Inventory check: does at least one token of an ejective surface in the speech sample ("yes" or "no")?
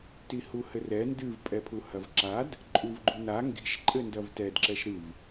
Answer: yes